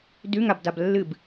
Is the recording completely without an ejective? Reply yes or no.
yes